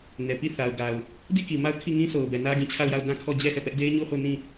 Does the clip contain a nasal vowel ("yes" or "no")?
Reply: yes